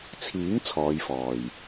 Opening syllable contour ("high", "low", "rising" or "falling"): rising